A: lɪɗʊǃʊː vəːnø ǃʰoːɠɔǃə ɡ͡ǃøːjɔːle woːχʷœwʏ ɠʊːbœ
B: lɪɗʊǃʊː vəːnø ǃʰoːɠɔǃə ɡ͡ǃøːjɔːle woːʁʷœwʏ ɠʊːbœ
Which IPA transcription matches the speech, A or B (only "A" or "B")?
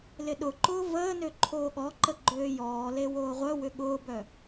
B